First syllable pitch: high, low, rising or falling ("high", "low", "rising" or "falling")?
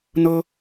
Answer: high